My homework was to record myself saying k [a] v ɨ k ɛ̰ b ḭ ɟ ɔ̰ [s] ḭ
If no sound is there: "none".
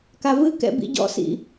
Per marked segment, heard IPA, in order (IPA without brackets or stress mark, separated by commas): a, s